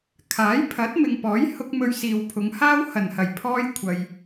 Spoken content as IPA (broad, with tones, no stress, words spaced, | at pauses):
kʰaː˨˥jpʰɐ˨˥t̚mɪ˨ŋpɔː˨˥j hʊ˥k̚ mɵ˧ɥsiː˨wpʰʊ˨˧ŋhaː˥w hɐ˨˩nhɐ˨˩jpʰɔː˧j kʷʰɐ˨j